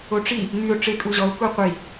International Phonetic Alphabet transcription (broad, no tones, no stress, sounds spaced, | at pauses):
o ʈ͡ʂ i | ŋ y ʊ̯ ʈ͡ʂ e kʼ u ʑ ɔ ʊ̯ k u qʷ i